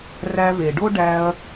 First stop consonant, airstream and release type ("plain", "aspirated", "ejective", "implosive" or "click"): plain